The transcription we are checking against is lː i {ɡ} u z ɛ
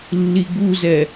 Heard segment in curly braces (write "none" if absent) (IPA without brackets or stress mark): ɡ